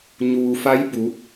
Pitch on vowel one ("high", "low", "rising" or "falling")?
low